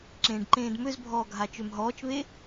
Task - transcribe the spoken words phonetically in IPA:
ǁẽːɖǃẽːdmøzbʱɔː ɡʱat͡ʃømɦɔːt͡ʃβe

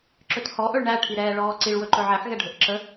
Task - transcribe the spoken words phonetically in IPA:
ǁɵthɔʔɵɭ ɳæʈʰiɾɛːɭɔː ǀiɭ wɵǃɵʕɛħɣɛ ɖʱɵʔǁə

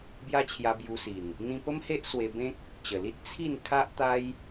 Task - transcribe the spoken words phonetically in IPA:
bja˦t͡ɕʰja˧bju˧si˨˩n | n̪ĩ˧pə˦mhe˦ʔ swe˧bẽ˦k̚ | t͡ɕə˨˩li˦t̚ t͡sʰi˥˧n kʰa˦ʔt̪a˦j

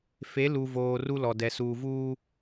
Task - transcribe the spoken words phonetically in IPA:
fe˨˦lu˨voː˨ ru˦lɔ˨dɛ˨ suː˨vuː˦

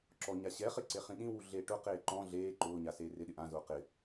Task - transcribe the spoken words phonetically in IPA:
ǁɔɲa ɕɛχɪ ǀeχĩɗĩwu ɮeːʈʊqeː ǃɔ̃ ɮeː ǃʊːɲa seːrɪɗɪ ʔãzʊː qɪ

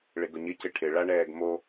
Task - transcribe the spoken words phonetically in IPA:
ɭɪɡʊɲɪ cɪʈʰɪ ɭaɳɛːɡmo

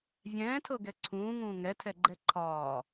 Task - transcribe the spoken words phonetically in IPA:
vʲɛ̃ːtʰɤɡɛ ǀʰũːŋũː ŋɛtʰɛɡ͡ǃɛ ǃʰɒː

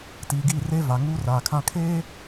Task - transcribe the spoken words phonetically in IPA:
tiː˨ɡiː˦˨reː˦ va˨ŋuː˦ raː˨kʰã˦ kʰeː˦

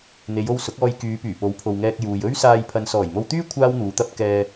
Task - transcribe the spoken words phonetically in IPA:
n̪e˨˧jo˧w sʊ˨˥k̚ɔː˧j kyː˨˧pyː˨˩ po˨˥wpʰo˨wŋɛː˧k̚ juː˨jɵ˥ɥsaː˧j pʰɐ˨nsɔː˨˩jmo˧wt̪yː˥ kʷʰaː˥wn̪uː˨˧t̪ɐ˥p̚ kɛː˧

